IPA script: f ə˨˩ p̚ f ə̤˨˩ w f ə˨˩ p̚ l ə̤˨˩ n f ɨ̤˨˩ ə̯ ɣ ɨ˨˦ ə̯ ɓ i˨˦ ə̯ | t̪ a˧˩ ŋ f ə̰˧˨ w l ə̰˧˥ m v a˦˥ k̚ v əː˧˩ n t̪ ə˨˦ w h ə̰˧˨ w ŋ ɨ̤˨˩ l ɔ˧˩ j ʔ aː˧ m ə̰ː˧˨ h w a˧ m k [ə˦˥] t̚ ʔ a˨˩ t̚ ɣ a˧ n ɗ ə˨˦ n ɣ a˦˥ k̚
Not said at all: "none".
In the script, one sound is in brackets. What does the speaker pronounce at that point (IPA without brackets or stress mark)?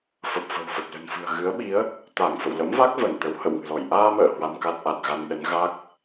a˦˥